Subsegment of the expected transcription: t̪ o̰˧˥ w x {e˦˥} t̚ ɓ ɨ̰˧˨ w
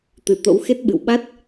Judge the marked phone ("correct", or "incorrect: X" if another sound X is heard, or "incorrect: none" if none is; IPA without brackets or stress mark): correct